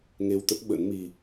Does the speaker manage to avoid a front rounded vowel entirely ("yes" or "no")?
yes